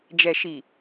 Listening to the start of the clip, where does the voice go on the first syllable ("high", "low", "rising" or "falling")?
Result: low